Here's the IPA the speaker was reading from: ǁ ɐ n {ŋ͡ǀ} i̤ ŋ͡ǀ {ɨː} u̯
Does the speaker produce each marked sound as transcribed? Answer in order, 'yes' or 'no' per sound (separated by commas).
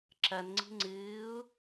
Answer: yes, yes